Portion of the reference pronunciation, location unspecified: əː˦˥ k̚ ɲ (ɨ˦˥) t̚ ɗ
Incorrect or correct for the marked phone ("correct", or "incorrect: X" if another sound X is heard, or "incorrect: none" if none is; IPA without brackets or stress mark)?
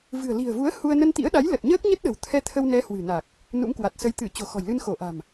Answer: incorrect: ə˦˥